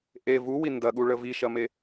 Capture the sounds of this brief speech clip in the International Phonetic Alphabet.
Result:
ʔe vuwi ndɐɠuɭə viʃɐme

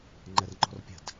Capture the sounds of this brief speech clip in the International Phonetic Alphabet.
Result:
ŋ͡ǃɛrŋ͡ǃɔ̤rpʲə̤d

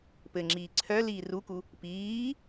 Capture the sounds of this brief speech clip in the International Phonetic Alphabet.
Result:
pɘŋ͡ǁiː ǀʰœ liːruku | piː

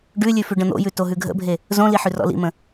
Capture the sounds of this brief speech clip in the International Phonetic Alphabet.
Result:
ɖʉlʲʉ fʉɖə̃n̪o̰jʉ toɦʉɡʱə̰bʱe | zõli ħʉrɔ̰lḭmə̃

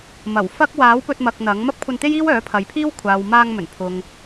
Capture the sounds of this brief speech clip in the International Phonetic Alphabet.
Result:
mɐ˨˩wfɐ˥k̚ waː˨˥wpɵ˧t̚mɐ˨k̚ n̪ɐ˨˥ŋ mɐ˥p̚kʷʰɐ˧nt̪e˥j iː˥wœː˨˥pʰɐ˨˧jpʰiː˥w kʷʰaː˨wmaː˧ŋmɵ˨˩n pʰʊ˨ŋ

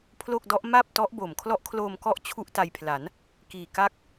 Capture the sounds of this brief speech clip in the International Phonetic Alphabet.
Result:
pʰlo˥˩k̚dɔ˦˥ʔ ma˥˩p̚tɔ˦˥ʔbo˨˩m kʰlɔ˦˥ʔkʰloː˧mkɔ˦˥ʔ t͡ɕʰu˥˩ʔta˧jpʰla˩˦n | kiː˨˩ka˦˥k̚

